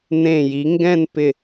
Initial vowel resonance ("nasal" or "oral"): nasal